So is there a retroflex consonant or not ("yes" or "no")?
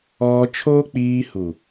no